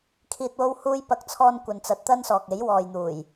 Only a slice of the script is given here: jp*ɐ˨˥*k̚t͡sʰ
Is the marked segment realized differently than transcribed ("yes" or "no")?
no